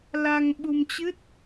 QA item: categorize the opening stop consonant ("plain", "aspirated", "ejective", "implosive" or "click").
implosive